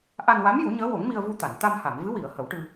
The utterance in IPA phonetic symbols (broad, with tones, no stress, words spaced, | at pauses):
ʔa˧nwa˧˥mju˨˩˦ ɲəː˧˥wo˨˩˦ŋmi˧ə̯ vu˧t̪a˨˩˨n t̪a˧mha˨˩˨mvɨ˧˥ wi˨˩˨ə̯ hə˨˩˦wʈɨ˧